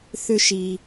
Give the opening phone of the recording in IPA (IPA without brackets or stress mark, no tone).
θ